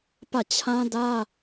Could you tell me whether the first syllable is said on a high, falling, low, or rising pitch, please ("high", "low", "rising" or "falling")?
falling